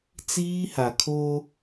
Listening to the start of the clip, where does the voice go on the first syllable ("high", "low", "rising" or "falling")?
high